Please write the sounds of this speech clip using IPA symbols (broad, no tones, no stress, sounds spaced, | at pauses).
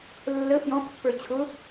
lː ə f j ɔ̃ pː ə˞ t͡ɕʰ ʊ